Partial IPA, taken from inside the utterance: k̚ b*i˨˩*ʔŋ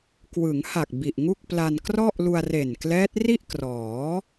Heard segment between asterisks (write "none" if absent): i˨˩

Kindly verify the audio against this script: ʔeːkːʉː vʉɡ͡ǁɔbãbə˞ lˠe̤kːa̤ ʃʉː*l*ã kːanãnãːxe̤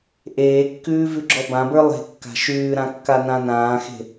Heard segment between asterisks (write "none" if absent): ɾ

